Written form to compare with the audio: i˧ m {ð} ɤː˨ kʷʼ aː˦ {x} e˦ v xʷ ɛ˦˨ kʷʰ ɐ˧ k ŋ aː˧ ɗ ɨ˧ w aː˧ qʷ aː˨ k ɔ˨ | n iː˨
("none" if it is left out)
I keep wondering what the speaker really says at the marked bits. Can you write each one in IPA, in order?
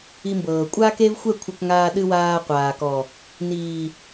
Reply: b, k

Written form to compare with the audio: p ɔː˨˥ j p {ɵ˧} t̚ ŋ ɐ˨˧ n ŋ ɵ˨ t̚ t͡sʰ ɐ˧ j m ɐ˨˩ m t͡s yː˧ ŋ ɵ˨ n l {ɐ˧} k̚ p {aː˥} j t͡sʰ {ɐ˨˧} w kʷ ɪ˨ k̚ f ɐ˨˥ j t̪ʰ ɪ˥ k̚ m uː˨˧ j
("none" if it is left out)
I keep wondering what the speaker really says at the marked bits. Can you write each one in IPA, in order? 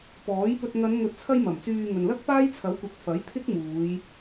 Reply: ɵ˧, ɐ˥, aː˥, ɐ˨˥

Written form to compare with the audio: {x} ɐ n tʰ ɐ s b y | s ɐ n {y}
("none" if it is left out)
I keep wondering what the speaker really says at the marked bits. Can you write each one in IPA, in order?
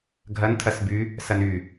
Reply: ɡʱ, y

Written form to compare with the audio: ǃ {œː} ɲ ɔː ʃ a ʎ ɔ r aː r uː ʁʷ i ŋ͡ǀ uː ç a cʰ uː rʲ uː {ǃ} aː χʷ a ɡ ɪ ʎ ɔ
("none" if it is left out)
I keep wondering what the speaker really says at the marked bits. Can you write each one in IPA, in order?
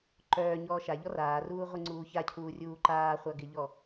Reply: œː, ǃ

